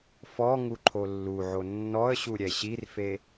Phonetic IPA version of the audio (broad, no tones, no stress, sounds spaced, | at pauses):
f ɔ ŋ u ǃʰ o lː u ʕ o nː ɔ ə̯ ɕ u ɾʲ ɛ ɕ i r f e